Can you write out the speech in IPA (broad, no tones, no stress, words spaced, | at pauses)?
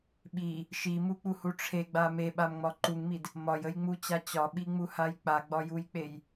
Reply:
ɓi | ʃimuk͡puhu ʈ͡ʂʰeɡ͡ba meɓamŋ͡mɒ ǃuŋmid | mɒjəjŋ͡mut͡ɕa t͡ɕɒɓiŋ͡muhaj k͡paɡ͡bɒjujk͡pej